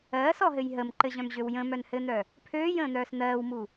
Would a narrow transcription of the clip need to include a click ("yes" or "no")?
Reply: yes